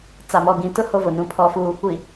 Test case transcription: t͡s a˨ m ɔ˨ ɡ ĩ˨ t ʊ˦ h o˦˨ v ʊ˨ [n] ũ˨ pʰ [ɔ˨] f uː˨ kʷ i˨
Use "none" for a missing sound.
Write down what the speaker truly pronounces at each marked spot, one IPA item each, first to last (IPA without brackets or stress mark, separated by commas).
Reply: n, ɔ˨